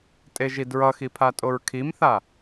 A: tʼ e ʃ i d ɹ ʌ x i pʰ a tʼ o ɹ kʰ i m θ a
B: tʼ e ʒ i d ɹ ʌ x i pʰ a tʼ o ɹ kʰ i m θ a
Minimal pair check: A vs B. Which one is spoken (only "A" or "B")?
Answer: B